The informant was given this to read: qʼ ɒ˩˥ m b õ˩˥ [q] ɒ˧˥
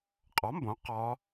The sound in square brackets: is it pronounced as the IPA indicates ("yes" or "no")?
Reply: yes